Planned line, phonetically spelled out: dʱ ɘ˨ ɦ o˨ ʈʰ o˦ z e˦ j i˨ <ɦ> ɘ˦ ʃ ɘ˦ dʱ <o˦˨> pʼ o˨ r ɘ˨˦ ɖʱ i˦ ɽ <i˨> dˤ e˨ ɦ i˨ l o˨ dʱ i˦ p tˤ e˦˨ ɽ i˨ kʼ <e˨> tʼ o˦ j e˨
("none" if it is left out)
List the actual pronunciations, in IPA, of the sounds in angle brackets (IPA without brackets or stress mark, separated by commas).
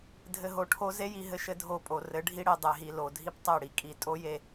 ɦ, o˦˨, i˨, i˨